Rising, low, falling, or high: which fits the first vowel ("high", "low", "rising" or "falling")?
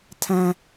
low